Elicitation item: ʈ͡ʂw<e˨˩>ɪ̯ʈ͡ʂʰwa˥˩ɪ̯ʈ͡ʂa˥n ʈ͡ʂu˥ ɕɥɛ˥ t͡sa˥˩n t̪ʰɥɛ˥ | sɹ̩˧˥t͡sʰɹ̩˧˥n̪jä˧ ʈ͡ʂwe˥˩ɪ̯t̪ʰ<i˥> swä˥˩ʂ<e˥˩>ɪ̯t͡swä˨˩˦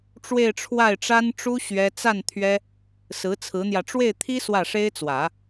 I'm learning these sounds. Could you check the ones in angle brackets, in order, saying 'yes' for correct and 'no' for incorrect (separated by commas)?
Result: no, yes, no